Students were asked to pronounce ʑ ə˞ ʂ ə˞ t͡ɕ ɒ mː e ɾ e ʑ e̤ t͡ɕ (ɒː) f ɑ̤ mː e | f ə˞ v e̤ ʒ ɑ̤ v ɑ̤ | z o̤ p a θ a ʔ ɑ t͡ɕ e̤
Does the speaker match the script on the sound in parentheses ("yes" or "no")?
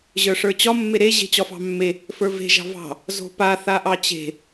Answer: no